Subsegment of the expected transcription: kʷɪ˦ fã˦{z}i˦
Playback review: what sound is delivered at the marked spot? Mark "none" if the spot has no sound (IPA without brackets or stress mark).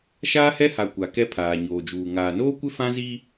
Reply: z